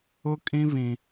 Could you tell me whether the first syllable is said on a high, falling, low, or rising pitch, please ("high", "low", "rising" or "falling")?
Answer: high